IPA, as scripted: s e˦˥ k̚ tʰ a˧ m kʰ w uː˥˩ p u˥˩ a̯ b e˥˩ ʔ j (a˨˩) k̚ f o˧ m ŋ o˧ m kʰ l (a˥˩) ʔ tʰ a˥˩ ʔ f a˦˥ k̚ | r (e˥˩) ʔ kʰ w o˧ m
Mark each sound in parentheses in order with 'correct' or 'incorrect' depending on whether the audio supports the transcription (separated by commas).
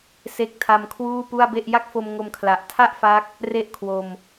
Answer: incorrect, incorrect, correct